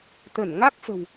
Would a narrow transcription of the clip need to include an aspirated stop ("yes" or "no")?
no